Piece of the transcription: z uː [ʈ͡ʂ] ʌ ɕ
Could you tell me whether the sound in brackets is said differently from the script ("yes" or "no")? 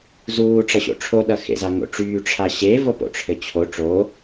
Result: no